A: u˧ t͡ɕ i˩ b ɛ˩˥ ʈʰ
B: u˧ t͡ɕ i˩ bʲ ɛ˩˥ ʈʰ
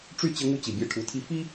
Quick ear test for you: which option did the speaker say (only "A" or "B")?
B